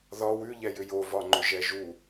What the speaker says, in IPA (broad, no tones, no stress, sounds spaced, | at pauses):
ð ɒ w ʉ ʎ ɛ j ʏ j o v ɒ ŋ͡ǃ ʏ ʒ ɛ ʒ u